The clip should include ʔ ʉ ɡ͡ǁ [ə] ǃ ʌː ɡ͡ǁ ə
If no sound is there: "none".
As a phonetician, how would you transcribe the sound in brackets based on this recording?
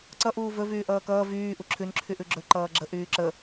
ɵ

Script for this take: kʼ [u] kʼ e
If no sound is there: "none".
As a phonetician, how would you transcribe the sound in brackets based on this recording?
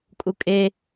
u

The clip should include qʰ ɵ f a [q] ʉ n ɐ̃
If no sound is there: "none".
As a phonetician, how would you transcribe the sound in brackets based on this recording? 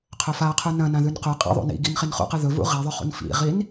qʰ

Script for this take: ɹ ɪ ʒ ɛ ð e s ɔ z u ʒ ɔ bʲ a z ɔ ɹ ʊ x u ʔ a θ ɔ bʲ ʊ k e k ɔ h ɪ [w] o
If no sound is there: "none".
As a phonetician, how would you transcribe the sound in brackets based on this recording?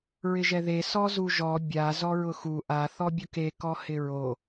ɹ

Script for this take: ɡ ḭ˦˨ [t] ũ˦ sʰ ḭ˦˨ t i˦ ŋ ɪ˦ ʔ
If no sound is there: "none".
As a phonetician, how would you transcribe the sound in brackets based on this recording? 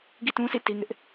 t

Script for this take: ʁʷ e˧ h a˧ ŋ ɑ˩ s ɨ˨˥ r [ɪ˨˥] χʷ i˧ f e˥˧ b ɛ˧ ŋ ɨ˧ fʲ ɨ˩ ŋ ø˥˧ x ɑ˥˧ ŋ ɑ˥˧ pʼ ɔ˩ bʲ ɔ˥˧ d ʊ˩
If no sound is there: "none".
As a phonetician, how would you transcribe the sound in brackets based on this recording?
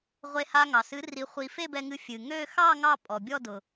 i˨˥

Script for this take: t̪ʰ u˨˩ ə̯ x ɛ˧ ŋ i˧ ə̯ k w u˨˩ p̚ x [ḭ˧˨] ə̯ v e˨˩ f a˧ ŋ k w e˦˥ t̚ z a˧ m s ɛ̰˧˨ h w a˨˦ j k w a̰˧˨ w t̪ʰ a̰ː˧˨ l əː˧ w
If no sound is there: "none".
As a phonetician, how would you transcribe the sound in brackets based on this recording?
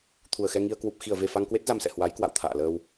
i˧˩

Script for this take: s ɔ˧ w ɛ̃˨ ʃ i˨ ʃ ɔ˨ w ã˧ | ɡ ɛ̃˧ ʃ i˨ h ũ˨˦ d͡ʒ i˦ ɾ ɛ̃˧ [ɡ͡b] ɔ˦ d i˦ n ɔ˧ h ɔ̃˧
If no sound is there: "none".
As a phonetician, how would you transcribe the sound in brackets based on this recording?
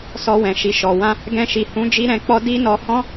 k͡p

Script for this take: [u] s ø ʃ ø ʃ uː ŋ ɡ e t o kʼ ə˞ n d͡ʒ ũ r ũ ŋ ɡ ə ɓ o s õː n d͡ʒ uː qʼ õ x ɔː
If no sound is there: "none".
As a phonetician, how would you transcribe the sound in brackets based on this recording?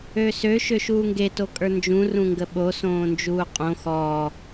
ø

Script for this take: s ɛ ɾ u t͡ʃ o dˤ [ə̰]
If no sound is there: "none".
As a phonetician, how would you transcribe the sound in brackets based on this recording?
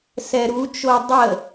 ə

